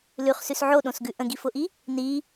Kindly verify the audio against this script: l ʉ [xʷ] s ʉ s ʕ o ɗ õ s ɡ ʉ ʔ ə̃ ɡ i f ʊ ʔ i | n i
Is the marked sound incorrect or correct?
incorrect